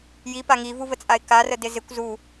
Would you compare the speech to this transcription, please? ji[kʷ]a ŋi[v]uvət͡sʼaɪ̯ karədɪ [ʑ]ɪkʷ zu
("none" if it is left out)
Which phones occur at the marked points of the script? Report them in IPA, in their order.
p, v, z

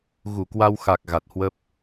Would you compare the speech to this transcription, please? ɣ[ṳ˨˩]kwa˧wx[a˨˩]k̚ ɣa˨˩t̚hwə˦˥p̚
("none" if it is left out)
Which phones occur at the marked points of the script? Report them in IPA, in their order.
u˧˩, a˨˩

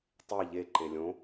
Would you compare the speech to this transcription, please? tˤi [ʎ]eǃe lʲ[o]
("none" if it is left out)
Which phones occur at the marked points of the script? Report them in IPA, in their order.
ʎ, õ

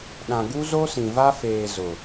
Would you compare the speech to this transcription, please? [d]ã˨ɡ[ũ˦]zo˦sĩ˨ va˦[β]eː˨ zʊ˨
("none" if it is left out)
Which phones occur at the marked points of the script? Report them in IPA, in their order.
ɗ, u˦, f

